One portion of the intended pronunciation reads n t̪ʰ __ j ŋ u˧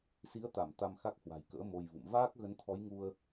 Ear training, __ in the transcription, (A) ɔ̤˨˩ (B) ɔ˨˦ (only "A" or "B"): B